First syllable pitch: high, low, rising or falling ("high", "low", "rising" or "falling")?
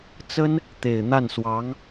high